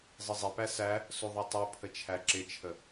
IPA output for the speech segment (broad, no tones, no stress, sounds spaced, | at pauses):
zˤ ɪ zˤ i p æ s æ | s u ðˤ i tˤ u pʰ ə t͡ʃʰ æ ǁ ɪ t͡ʃʰ ə